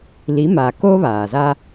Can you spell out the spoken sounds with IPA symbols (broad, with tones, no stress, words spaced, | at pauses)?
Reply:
li˨˦ma˨ko˦ βaː˨za˦